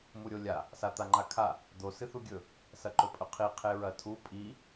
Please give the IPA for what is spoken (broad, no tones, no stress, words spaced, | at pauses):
muɾʲolʲa | sat̪aŋ͡ǃakʰa | d̪o sɨθuɡʲɵ | sɐǃɵpʼɵqʰi qʰeɹɐtʰu pʼi